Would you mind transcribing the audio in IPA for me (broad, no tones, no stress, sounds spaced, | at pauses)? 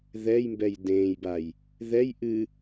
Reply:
ð ɛ j m b ɛ j d ẽː j b a j | ð ɛ j ʔ ɨ